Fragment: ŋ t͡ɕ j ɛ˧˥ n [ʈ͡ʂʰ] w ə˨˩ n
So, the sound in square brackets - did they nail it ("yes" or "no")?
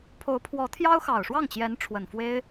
yes